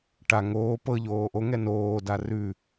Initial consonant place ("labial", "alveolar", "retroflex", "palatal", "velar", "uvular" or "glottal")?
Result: retroflex